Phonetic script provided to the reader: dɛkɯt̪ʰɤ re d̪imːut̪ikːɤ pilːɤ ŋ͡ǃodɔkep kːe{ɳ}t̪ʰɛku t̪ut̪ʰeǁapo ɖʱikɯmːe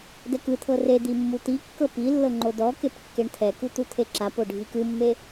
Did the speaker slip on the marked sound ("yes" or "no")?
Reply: no